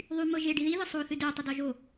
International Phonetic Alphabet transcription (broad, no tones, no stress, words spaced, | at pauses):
ðˤy mɤʒe ɖiði ðɨsˤo θɨde tˤədɔʒo